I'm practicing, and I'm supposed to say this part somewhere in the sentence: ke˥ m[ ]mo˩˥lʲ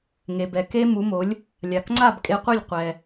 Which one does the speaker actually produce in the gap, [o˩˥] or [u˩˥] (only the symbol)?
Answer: u˩˥